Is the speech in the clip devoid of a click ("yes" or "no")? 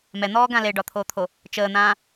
yes